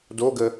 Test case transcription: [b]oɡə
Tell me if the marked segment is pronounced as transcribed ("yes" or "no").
no